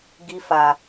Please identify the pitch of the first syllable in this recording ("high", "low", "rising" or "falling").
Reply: high